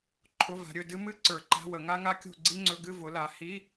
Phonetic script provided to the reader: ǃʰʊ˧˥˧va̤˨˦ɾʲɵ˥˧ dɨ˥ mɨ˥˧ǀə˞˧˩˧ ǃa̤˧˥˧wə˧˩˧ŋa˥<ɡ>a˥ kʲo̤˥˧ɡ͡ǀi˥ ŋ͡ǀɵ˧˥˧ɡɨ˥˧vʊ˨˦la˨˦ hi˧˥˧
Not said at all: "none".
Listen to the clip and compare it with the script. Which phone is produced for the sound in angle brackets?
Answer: ŋ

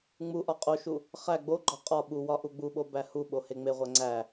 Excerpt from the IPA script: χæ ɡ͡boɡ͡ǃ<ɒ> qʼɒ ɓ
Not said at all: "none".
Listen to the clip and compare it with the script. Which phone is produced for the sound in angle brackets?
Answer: ɒ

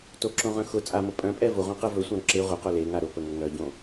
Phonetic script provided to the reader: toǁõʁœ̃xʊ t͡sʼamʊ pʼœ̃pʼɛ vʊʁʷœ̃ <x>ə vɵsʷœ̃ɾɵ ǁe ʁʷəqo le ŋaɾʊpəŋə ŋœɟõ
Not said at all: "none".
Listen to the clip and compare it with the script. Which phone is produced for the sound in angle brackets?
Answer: q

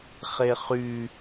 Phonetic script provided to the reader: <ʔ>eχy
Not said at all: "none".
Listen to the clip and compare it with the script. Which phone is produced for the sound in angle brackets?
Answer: χ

